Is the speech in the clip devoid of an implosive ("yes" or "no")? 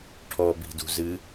yes